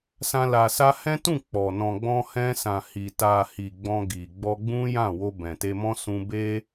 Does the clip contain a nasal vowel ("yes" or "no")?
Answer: yes